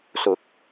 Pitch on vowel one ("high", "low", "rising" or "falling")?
rising